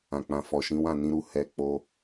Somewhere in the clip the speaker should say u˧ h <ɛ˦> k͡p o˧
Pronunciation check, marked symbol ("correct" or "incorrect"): incorrect